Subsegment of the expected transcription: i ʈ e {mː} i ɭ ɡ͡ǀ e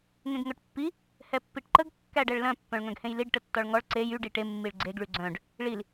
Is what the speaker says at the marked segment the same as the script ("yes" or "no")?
yes